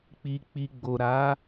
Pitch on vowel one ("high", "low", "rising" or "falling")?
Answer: low